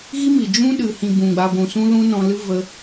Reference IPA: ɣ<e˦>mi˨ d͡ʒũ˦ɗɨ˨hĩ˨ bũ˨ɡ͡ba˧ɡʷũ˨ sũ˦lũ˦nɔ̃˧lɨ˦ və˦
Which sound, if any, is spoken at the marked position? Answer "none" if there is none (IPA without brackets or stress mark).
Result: i˦